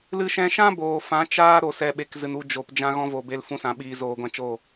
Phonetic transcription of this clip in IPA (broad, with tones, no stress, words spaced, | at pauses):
lɨ˧ʃɛ̃˧ʃã˦ boː˨fã˨˦ t͡ʃaː˦ ɾo˨sɛ˨ɓe˨k zɨ˨nu˧ d͡ʒo˨p d͡ʒã˧ɣɔ̃˧vo˨ be˧lfũ˧sã˨ɓiː˨ zoː˧ɡʷã˦t͡ʃo˦˨